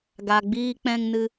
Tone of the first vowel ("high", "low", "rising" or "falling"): low